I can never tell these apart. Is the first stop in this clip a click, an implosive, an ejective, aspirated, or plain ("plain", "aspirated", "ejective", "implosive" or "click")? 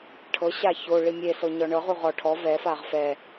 aspirated